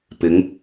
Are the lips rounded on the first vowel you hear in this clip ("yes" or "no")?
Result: no